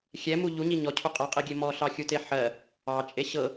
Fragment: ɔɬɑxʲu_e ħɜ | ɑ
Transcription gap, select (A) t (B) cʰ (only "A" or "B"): A